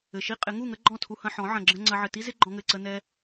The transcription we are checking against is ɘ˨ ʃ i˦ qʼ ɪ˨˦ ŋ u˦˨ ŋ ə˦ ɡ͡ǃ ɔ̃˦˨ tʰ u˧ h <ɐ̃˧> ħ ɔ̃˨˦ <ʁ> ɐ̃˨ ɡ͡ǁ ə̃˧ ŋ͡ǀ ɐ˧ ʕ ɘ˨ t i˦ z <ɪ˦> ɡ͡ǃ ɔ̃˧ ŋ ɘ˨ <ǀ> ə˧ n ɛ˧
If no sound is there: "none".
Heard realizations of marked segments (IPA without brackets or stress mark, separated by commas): ɐ̃˧, ʕ, ɪ˦, ǀ